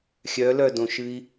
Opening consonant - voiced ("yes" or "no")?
no